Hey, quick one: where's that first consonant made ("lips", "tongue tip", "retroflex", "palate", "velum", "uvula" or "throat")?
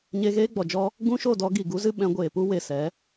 palate